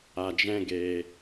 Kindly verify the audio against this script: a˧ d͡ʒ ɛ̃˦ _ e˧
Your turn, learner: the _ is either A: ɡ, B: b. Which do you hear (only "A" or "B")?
A